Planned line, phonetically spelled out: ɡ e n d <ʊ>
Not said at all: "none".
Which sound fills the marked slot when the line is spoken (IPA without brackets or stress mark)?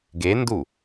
u